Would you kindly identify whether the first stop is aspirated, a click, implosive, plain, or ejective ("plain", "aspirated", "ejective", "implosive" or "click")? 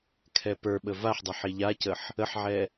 aspirated